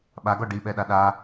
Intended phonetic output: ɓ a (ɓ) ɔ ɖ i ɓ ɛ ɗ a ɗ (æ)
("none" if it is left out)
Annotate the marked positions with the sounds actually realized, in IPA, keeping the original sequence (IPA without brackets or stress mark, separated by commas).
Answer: ɡ, a